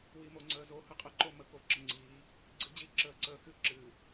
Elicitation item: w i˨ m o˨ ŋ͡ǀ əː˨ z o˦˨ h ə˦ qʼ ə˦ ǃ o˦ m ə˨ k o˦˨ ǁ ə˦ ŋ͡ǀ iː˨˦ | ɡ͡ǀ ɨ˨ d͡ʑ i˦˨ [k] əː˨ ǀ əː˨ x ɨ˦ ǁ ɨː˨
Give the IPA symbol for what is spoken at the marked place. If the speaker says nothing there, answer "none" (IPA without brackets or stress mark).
ǁ